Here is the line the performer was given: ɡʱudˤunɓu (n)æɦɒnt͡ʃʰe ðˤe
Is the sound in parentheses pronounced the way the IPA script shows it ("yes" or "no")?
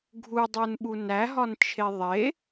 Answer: yes